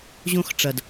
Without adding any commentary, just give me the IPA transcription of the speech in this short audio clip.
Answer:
ʑ õ˦ x ʈ͡ʂ ɐ˨ d

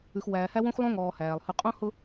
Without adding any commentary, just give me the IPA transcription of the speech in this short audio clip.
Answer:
ʉ˨ x w æː˨ h æ˦ w õ˦ x lˠ õ˦ ŋ ɔː˨ h æː˨ lˠ h ʉ˨ qʼ õ˦ h ʊ˦

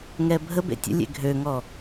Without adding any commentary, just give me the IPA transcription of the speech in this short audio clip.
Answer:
ŋ ɛ bʱ ə b ḛ tʲ ə̰ lʲ ḛ ɡʱ ø ŋ ɔ

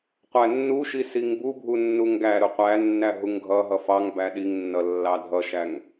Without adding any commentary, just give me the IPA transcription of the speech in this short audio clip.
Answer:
qʷ æ nː u ʃ i s i ŋ b u bʱ u nː u ŋ ɡ æ ɾ ʊ qʷ æ nː æ ɦ u ŋ ɡʱ ʌ ɦ ʌ f ɑ ŋ b æ ɗ i ŋ nː ʌ lː ɑ dʱ ʌ ʃ æ ŋ

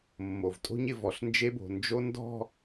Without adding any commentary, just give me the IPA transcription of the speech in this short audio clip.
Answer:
mː o˨ v tʼ o̤˦ ɲ ɪ˨ v ɔ˨ ɬ n d͡ʒ e˦ b o̤˨ n d͡ʒ o˦ n d ɔ̤˦˨

